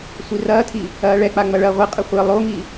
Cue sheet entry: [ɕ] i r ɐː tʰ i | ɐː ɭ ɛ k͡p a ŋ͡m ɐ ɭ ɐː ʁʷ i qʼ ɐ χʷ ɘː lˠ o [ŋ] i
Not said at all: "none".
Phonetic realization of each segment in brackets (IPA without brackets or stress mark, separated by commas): sʷ, ŋ